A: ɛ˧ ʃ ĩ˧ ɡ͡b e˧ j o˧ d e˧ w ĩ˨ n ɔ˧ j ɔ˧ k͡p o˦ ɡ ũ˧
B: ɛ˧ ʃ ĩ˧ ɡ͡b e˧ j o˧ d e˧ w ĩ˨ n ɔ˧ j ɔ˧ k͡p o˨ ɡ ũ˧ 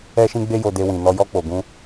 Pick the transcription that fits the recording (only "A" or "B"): B